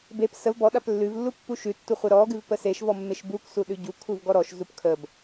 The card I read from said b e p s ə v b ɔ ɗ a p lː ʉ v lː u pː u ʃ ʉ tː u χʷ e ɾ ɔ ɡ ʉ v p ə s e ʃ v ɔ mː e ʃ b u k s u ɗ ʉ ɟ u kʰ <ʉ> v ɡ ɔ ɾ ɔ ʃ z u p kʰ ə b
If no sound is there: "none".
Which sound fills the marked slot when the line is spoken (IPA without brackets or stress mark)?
u